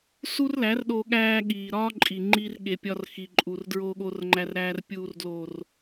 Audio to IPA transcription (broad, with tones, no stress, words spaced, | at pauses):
su˦rlæ˨˦rɗo˧ ɠæː˧ɠiː˨ ɾɒː˦ǃʼi˨ŋ͡ǃi˧r ɠe˨pʲɒ˧rxi˨ǃʼu˨r dɹoː˧ɠoː˧rŋ͡ǃæ˧rɾæː˧r pʲuː˨rdloː˨r